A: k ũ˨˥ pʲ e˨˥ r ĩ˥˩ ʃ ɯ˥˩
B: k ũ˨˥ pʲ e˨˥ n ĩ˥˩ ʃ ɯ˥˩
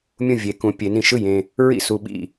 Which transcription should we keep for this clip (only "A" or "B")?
B